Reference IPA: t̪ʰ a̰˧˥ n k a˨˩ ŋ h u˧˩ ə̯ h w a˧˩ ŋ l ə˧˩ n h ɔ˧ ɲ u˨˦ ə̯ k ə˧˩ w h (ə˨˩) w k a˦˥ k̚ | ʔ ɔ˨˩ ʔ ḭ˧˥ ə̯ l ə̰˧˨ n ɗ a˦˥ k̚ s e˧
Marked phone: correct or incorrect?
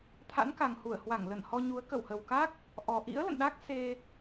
correct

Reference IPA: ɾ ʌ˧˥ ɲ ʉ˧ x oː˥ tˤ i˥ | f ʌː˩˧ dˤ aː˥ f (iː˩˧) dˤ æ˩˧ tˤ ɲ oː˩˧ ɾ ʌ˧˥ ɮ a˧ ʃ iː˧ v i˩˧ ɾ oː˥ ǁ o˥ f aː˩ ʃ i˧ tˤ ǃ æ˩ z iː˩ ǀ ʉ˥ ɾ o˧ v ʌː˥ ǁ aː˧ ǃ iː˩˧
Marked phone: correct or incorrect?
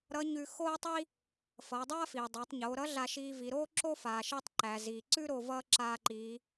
incorrect: iː˩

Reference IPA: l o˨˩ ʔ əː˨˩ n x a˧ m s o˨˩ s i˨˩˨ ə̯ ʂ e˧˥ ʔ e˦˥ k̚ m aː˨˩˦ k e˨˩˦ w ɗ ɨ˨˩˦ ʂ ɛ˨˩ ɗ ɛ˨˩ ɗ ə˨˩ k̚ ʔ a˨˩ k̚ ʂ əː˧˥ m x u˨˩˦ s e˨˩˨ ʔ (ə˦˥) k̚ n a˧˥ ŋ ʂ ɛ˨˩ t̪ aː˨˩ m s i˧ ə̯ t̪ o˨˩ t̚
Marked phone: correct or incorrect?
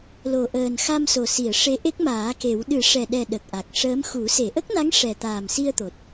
correct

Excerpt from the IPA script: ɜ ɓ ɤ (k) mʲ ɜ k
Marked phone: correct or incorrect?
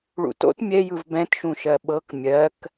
correct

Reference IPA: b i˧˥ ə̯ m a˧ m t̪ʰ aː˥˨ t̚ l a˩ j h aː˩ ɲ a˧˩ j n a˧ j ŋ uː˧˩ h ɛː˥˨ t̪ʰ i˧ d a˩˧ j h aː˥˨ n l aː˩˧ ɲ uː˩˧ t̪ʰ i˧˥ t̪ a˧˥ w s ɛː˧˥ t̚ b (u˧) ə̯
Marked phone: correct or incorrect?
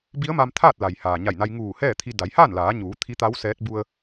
correct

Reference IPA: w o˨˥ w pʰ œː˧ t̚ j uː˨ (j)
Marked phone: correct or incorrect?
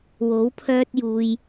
correct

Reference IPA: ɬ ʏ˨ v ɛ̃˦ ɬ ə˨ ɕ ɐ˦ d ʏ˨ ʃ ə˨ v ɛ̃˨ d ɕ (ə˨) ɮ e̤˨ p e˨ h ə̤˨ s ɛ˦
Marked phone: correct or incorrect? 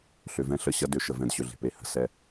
incorrect: ʏ˨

